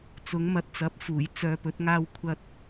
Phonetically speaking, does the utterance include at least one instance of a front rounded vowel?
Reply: yes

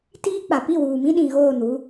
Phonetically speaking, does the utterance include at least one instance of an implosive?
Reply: yes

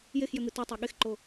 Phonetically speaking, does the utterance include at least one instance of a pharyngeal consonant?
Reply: no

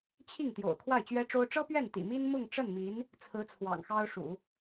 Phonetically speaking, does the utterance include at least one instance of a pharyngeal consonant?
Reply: no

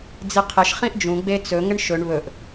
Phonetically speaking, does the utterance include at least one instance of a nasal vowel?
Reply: yes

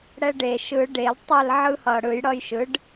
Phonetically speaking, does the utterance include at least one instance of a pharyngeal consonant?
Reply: yes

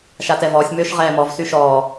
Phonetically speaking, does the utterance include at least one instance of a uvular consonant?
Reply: yes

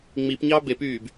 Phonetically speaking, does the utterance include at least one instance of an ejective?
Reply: no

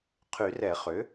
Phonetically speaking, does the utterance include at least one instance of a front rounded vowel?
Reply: yes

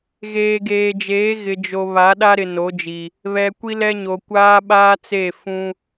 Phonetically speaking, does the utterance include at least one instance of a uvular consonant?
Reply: no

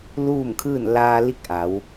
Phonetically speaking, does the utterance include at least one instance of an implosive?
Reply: no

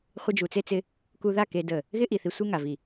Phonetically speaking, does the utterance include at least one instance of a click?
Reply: no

